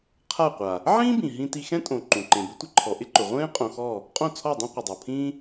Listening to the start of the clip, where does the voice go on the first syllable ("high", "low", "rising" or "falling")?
falling